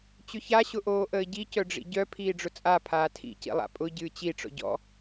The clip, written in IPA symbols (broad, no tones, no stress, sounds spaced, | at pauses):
t͡ɕ ʏ ç a ɕ ʊ ʔ oː ʔ əː ɟ i c œ ɖ͡ʐ ḭ ɟ œ pʰ iː ɖ͡ʐ ʊ t͡sʼ a pʰ aː tʰ ḭ c ḭ lˠ a̰ pʼ ʊ ɟ ɨː t͡ɕ i ʈ͡ʂ ɔ̰ ɟ ɔ̰